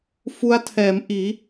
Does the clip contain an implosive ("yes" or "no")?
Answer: no